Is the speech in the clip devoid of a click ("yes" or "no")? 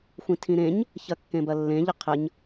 yes